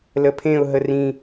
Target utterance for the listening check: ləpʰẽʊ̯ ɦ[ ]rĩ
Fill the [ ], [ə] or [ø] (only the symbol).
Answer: ə